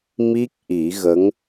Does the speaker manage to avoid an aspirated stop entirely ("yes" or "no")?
yes